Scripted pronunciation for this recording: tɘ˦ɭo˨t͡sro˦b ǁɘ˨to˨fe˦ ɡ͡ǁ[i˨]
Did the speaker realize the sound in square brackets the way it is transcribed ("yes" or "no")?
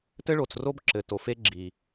yes